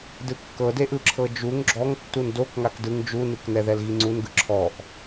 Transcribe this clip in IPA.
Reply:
d ɯ kː ɤ d e ʔ ɯ ǁʰ ɤ d͡ʒ u ŋ ɡ͡ǁ ɔ ŋ tː u n d o k ŋ a k d ɯ ŋ d͡ʒ u n ɯ k n ɛ ð ɛ l ɣ i ŋ͡ǀ u n ɡ ɯ ǁʰ ɔ ʔ

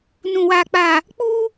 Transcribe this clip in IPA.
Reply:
n ũ˨ w aː˨ k͡p a˨ | k͡p u˦

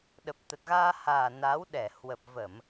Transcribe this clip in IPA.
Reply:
ɗ ə˨˩ p̚ t̪ ə˨˩ t̚ ɣ aː˧ h aː˨˩ n a˨˦ w ɗ ɛ˧˩ h w ə˨˩ p̚ v ə˧˩˨ m

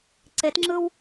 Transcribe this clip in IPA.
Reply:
ǀ e t ŋ͡ǁ ɯ w

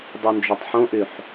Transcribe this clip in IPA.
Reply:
dˤ y n d͡ʒ o tˤ ħ õ ʔ y ħ

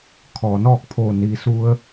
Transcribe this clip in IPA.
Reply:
kʰ ɔː˩ n ɔː˥˨ k̚ pʰ oː˧˩ n iː˩ s u˧ ə̯

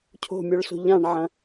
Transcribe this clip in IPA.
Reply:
cʰ o̤ mʲ ɔ ɭ s o̤ ʎ ã ɳ ʕ ɐ̃

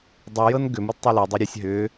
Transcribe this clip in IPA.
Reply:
dˤ u j ɤ n ɡ ʏ m ɯ d tˤ e l ɤ dˤ e ɾʲ ɯ sʲ ɦ ʏ

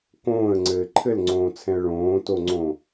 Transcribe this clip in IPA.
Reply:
k õː ə̯ ŋ͡ǀ ɘː ǃʰ ɘ l ŋ͡ǀ õː t͡sʰ ɛ̃ ə̯ ɭ õː t o ŋ͡ǀ õ

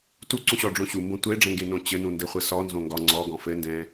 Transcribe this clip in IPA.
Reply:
t u ǀ ũ ɕ ɔ ɖ͡ʐ õ ɕ u m b õ tʷ e ɖ͡ʐ ɛ̃ ŋ ɡ e n õ t͡ɕ ɘ n ũ n d ɘ χʷ ɘ s ɔ n z õ ŋ ɡ ɒ ŋ͡ǀ ɔ ɡ ɔ̃ f ɘ n d ɛ̃

